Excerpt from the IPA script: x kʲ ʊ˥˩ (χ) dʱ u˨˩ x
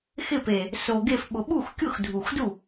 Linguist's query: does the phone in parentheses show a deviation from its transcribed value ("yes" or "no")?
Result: yes